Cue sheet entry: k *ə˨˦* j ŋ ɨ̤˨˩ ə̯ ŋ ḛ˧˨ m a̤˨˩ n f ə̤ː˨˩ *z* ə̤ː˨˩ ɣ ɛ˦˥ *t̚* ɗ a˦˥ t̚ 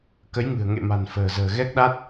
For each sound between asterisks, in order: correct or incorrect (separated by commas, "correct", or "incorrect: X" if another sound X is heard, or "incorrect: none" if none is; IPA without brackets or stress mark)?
correct, correct, incorrect: k̚